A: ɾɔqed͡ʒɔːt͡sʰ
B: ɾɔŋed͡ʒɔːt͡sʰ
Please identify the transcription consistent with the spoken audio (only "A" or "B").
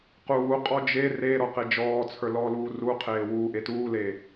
A